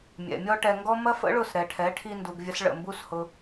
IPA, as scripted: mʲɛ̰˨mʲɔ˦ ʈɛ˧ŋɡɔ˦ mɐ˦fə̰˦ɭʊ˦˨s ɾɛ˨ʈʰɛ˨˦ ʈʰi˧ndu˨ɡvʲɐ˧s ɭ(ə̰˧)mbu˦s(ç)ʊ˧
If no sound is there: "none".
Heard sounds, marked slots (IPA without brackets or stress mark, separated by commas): ə̰˦˨, h